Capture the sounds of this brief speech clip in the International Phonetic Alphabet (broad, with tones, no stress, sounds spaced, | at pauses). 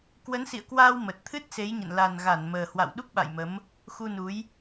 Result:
k w ə˨˦ n s ḭ˧˨ ə̯ k w aː˧ w m ə˨˩ t̚ t̪ʰ ɨ˦˥ t̚ s e˨˦ j ɲ ə̰˧˨ n l a˨˩ n ɣ a˧˩ n m əː˨˩ h w a̰˧˨ w ɗ u˦˥ k̚ ɓ a̰˧˨ j m ə˨˦ m | x u˧ n u˨˦ j